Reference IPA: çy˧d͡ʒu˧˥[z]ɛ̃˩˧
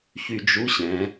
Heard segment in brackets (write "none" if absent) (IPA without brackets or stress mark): ɕ